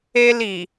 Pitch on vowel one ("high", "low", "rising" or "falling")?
high